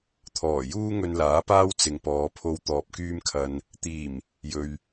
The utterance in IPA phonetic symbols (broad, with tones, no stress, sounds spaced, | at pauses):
t̪ʰ ɔː˨˩ j uː˥ ŋ ɵ˧ n l aː˨˥ p aː˥ w t͡s ɪ˨ ŋ p ɔː˨˧ pʰ o˧ w t̪ ɔː˨ p̚ k yː˧ m kʰ ɐ˨ n | t̪ iː˨˩ m | j ɵ˨ ɥ